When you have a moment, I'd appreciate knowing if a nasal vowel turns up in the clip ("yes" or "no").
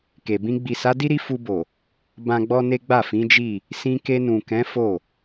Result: yes